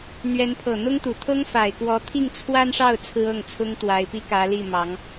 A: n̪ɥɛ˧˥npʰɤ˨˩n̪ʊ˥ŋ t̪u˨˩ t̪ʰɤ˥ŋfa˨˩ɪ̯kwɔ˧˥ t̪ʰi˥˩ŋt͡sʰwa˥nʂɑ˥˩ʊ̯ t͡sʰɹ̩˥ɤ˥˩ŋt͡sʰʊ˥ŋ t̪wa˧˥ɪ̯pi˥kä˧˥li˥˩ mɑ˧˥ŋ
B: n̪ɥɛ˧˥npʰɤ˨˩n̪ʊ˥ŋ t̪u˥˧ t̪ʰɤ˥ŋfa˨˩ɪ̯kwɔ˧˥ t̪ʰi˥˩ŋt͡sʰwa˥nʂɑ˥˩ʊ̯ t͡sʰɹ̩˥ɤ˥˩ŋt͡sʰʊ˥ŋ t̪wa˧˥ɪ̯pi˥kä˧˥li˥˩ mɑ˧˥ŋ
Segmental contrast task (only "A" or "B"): A